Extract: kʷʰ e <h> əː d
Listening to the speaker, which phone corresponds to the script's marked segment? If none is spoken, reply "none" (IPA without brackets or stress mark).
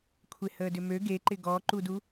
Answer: h